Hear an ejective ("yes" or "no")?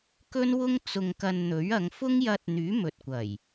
no